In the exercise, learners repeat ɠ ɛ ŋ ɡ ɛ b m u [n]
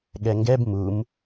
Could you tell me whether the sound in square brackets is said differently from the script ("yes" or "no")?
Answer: yes